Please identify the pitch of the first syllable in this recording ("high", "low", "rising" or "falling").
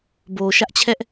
low